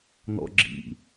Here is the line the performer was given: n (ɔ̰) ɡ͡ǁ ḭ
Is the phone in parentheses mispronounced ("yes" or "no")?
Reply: no